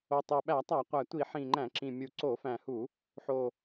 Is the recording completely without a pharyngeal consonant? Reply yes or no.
no